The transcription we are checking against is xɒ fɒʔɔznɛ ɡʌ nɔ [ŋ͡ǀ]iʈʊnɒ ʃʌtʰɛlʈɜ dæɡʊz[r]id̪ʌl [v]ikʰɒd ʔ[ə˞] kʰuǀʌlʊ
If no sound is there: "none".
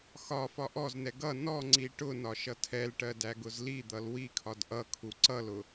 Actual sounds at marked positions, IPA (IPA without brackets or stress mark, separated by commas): ŋ͡ǀ, l, w, ʌ